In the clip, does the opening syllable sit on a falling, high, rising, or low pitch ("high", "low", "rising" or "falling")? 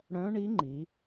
rising